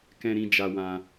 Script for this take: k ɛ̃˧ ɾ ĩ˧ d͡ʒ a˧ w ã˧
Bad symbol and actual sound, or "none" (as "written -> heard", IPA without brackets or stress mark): none